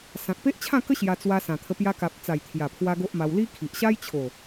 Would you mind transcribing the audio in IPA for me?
sã˨k̚pe˦ʔt͡ɕʰã˥˧kə˦ ɕja˧t͡swa˧sã˨˩t̪ʰə˧ pja˧ka˨p̚t͡sa˨˩j t̪ʰja˨˩pʰwa˧ ɡo˦ʔma˧w li˦ kʰi˨ʔɕa˦j t͡ɕʰo˨˩

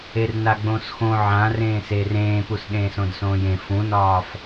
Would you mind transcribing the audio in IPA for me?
ernaɡ͡bõsxõ ʕãrẽː seːrẽːpusɗẽːs õdsõːjẽ fũnɒːf

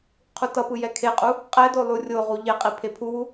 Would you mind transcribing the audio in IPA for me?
qʰutʌpɯ jɛkʰeqʼu | qʼɛdo lˠurʲoʁu ʎeqʼi pʰepʰuwu

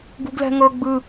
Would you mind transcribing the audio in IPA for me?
ɡṳɡlɛ̤ŋɤ ɡ͡bɯ

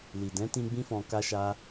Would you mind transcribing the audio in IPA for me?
li˨dɛ̃˨˦tĩ˧ ɡ͡bĩ˦fɔ̃˧ ka˦ʃa˦

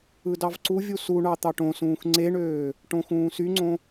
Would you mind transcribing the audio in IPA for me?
ɯdɑvǀuvʲu suɳɑ t̪ɑʈõsũːx ŋ͡ǀeɳøː | ʈõxũːsyŋ͡ǀõ

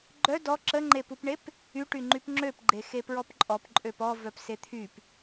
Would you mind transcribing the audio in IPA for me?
ɡ͡ǃœ dɔ ǁəŋ͡ǃepupɳep | yʈy ŋ͡ǃypŋ͡ǁøpɡ͡ǃe xepɹɔpǃʼɔp ǃʼøpɔvœp set̪ʰyp

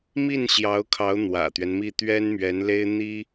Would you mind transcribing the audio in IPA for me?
mi˥˩n ɕjɑ˧˥ʊ̯kʰɑ˧˥ʊ̯ n̪wä̰˨˩t̪ɥɛ˦nmi˥˩ t̪ɥɛ˥nmɥɛ˧˥nle˥ɪ̯ n̪i˥

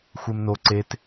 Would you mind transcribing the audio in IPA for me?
xʷemno ǀet

